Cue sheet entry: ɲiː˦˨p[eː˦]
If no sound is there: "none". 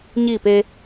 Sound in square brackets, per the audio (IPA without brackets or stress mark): eː˦